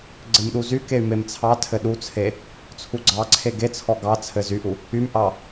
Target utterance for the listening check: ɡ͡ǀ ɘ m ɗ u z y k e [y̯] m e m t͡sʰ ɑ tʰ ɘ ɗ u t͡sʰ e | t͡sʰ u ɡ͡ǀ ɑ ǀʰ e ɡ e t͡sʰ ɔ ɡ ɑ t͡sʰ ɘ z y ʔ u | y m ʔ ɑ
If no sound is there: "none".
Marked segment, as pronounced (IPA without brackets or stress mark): y̯